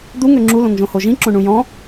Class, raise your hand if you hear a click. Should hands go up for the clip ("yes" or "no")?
yes